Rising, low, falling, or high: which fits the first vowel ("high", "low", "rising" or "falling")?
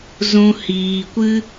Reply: high